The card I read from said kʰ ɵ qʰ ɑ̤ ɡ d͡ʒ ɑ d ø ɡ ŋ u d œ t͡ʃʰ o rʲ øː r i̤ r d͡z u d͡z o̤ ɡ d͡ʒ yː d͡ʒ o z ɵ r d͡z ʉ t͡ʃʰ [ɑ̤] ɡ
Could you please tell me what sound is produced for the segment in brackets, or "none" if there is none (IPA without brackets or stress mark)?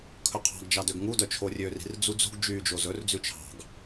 ɑ̤